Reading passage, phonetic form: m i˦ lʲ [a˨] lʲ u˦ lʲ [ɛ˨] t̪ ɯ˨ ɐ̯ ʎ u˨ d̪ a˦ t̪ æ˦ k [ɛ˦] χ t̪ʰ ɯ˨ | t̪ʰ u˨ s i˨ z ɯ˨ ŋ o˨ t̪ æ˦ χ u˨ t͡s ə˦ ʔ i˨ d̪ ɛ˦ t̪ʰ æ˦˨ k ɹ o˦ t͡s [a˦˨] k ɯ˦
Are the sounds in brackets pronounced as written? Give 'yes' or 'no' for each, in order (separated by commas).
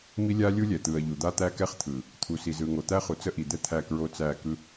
no, yes, yes, no